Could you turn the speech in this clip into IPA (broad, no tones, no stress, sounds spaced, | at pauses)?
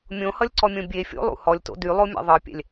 mʲ õ h ʌ lʲ ǀ ɔ mʲ õ bʲ e fʲ o̰ lˠ ṵ h ɔ lʲ t o̰ d y lˠ o mʲ ɛ̰ ðˤ ɤ pʲ ɛ̰ lʲ